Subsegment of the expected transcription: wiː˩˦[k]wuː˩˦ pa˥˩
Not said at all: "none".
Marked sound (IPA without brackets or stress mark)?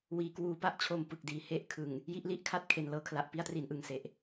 k